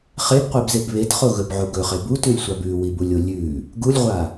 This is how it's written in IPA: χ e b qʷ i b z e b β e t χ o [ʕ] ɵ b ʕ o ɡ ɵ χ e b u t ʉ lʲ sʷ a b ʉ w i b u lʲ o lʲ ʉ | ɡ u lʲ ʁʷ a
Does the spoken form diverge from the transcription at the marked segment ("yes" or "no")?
yes